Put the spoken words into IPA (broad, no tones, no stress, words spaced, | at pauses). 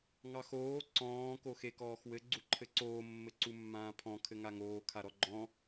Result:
ŋɑxoː ǀɔ̃ː koxekɔːxwɘ ɡ͡ǀuǃʰɘǀoː mːɘǀumːãːpʰɔ̃ kʰɘŋaŋoː kʰaɾɔɡ͡ǃɔ̃